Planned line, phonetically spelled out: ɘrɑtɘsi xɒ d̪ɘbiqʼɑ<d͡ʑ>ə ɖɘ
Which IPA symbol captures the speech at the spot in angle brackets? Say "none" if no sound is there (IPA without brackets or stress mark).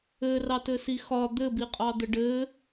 d̪